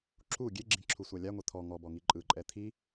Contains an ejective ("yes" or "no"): yes